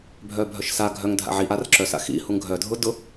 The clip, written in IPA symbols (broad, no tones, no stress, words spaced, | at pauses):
bʱœbʱœʃsa ɡʱœŋdʱa̰ ʕiʔ arǁœsa̰ xḭ huŋɡʱœdʱʊdʊ